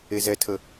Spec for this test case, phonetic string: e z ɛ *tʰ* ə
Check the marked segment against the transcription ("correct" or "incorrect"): correct